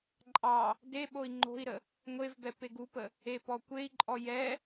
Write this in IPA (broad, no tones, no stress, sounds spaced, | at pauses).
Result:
ǃʼ ɑ | d e ɓ o i̯ ŋ͡ǃ o̤ i̯ ɾ ə | ŋʷ e v b ɛ p e ɡ u p ə | e p ɔ kʷ e i̯ ǃʼ ɔ j ɛ